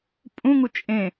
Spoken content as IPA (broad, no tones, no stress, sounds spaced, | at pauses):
pʼ ũ ŋ u t͡ʃʼ ẽ